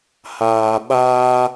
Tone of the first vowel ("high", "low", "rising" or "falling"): low